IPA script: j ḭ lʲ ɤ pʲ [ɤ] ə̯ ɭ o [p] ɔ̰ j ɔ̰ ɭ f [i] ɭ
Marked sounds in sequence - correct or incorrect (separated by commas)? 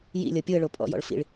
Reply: incorrect, incorrect, incorrect